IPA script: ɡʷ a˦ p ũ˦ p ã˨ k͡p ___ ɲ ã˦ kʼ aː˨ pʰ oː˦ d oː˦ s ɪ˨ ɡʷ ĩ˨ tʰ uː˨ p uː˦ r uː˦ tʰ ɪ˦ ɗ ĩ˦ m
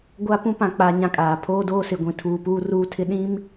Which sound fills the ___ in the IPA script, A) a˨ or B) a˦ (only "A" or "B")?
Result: A